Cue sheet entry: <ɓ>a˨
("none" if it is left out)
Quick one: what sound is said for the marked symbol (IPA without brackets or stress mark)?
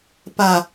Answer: p